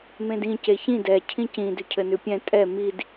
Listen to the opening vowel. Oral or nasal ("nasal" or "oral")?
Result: nasal